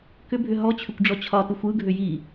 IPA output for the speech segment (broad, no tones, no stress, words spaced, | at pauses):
kʏbʱʏ ɦɔt͡ɕʰʏkʷɖ͡ʐɔ t͡ɕʰɒtɯxʷ ɯɡʱʏ ji